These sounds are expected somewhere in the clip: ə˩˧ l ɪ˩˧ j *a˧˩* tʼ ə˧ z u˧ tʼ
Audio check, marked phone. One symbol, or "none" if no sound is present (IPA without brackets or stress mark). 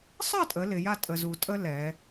a˥˧